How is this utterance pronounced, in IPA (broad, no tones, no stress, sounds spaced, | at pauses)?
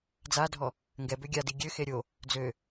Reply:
d͡z a dʱ ɔ | ŋ ɡ ɛ b ø ɡʲ a d i ɡʲ ø x e ɾʲ o | d͡z ø